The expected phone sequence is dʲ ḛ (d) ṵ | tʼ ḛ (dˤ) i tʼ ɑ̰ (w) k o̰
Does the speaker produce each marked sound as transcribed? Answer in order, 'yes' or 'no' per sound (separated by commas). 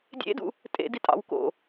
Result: yes, no, yes